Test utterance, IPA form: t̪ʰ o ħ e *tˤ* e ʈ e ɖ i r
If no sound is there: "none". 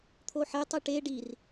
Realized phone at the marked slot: tˤ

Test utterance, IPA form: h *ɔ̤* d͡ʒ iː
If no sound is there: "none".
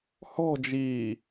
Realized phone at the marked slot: ɔ̤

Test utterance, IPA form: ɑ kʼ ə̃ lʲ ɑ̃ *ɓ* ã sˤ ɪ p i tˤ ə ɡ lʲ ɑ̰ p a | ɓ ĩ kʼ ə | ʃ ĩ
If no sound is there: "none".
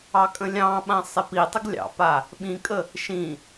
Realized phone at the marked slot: ɓ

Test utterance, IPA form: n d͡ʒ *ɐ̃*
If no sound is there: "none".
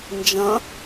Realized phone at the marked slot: ɐ̃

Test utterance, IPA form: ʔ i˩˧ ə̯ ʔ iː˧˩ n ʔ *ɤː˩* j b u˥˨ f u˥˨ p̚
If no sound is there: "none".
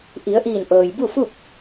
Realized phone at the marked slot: ɤː˩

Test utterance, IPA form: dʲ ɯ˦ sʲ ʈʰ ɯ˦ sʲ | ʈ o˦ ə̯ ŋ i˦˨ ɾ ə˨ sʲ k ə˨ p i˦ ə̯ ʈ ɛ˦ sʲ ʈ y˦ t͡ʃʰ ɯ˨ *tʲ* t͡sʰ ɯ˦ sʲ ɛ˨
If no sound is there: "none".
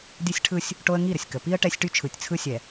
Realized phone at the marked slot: tʲ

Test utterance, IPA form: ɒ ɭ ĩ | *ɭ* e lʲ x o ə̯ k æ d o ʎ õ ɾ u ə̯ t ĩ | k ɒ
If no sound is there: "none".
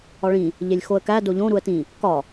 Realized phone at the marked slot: ʎ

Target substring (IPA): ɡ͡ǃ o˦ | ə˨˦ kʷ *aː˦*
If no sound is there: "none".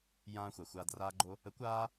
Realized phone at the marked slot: aː˧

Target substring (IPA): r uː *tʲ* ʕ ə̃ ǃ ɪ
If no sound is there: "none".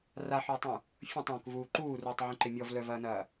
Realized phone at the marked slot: tˤ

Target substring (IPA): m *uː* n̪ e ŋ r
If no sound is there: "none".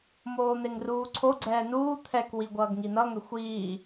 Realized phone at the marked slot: oː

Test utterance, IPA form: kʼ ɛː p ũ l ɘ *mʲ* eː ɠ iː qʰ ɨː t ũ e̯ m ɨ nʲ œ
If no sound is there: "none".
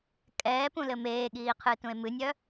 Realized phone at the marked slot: m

